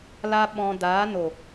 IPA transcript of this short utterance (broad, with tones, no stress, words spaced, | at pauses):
la˧ ɓɔ̃˧ daː˨˦no˨